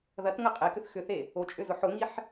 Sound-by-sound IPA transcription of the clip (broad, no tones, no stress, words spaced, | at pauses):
ðɐtŋə qʼekʏθ xʏθe | ot͡ʃʼʏzʊ ħʊŋiħ